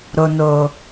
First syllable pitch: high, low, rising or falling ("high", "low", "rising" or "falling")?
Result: low